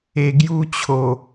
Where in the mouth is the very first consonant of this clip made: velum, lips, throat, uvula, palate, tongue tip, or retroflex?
velum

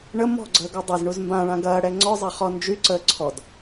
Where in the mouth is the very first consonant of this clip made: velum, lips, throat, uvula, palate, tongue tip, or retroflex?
retroflex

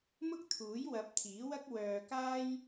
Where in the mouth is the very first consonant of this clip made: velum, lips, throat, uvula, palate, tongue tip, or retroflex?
lips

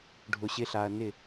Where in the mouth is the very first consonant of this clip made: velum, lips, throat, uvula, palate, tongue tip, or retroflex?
retroflex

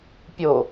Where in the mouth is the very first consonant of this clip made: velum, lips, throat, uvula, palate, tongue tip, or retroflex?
lips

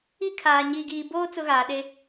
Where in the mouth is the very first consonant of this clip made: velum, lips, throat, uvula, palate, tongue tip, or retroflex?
velum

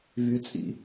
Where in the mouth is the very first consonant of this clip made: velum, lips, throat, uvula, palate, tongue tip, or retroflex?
lips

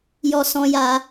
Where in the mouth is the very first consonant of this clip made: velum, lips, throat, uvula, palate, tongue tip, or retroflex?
palate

